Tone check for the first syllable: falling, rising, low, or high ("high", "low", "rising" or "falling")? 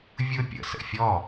high